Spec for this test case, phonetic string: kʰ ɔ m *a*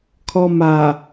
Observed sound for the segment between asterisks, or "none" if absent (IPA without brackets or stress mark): a